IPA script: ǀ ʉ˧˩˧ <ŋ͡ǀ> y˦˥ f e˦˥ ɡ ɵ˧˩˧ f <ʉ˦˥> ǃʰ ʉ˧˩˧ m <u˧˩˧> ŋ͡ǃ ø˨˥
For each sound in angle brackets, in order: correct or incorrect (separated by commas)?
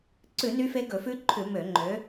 incorrect, correct, incorrect